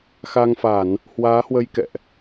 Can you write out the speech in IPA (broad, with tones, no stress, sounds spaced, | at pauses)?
x a˧ ŋ f a˧˩˨ n | h w aː˨˦ h w ə˧ j k ɛ̰˧˨ ʔ